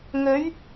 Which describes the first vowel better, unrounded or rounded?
rounded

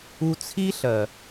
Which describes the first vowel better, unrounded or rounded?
rounded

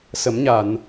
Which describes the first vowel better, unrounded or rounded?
unrounded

